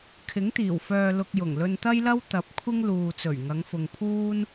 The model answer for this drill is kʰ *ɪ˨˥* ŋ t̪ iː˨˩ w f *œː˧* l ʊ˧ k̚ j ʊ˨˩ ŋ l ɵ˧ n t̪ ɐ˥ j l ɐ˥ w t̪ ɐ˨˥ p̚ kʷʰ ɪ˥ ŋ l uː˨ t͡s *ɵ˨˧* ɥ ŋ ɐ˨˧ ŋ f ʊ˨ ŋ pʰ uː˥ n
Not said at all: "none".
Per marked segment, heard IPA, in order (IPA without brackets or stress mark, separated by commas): ɪ˨˥, œː˧, ɵ˨˩